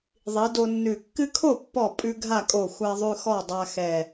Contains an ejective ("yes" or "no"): yes